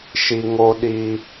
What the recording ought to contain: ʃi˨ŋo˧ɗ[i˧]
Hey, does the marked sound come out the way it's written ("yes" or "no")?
yes